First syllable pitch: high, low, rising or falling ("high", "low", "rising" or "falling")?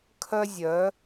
high